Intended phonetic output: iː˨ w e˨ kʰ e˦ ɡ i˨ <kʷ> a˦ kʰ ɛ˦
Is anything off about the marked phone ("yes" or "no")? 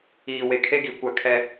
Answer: no